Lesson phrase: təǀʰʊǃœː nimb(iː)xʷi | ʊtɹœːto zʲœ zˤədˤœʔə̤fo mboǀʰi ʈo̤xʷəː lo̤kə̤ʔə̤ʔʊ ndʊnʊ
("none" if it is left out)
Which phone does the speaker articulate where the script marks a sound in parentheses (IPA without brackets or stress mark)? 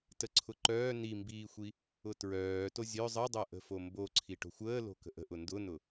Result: iː